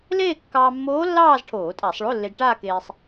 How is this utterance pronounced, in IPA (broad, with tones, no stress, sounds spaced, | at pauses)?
l eː˥˧ kː ɑː˧ mː oː˧˥ lː ɑː˥˧ z ʈʰ oː˧˩˧ tʼ a˧˩˧ sˤ ɭ o˧˥˧ lː e˧ d ʈ aː˥˧ k eː˧ sˤ